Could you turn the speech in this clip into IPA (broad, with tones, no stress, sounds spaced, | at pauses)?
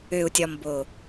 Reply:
ø˨ u̯ tʲ ɒ˨ m b o˨